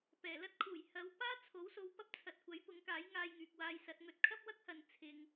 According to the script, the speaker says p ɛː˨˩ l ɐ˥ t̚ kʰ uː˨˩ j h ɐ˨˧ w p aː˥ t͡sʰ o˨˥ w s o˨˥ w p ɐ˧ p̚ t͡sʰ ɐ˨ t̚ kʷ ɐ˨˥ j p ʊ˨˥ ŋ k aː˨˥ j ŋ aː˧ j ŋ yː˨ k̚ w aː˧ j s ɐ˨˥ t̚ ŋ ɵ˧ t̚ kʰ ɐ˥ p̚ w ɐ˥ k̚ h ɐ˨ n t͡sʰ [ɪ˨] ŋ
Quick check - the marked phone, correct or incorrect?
incorrect: ɪ˧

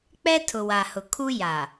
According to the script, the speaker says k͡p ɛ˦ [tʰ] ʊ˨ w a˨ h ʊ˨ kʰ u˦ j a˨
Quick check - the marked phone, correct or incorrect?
correct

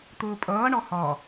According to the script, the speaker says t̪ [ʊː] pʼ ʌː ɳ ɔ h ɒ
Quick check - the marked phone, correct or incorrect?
correct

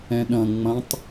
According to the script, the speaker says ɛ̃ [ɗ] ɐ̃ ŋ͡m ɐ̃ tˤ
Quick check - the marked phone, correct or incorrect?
correct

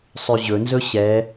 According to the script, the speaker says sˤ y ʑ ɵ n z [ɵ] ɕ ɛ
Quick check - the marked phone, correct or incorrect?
correct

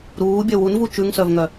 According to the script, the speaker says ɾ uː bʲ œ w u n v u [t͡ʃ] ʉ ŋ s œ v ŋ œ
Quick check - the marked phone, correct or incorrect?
correct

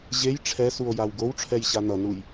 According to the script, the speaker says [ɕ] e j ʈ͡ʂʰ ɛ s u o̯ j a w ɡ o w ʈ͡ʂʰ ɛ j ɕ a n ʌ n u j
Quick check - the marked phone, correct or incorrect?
incorrect: ʑ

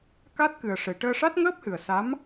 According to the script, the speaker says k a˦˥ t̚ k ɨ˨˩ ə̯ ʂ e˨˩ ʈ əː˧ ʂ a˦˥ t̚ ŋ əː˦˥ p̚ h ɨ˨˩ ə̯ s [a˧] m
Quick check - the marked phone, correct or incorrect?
incorrect: a˧˥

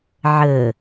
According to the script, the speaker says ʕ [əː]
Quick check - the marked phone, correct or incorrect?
correct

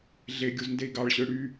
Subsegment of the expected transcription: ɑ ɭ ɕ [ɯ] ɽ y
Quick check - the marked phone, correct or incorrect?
correct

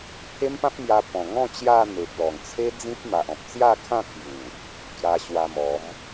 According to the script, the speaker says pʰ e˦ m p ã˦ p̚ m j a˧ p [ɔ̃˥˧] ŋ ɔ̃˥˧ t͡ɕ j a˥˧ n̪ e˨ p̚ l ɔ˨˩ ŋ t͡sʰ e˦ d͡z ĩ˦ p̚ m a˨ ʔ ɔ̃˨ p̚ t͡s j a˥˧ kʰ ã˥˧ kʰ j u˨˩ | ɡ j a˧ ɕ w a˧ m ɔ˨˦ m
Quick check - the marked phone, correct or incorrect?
incorrect: ɔ̃˨˩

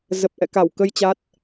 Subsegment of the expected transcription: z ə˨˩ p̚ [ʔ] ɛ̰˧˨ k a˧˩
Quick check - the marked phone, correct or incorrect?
correct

